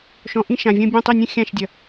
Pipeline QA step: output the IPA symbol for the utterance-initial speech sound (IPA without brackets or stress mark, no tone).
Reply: ʃ